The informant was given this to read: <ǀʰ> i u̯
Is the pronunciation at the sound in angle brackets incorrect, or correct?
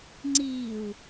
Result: incorrect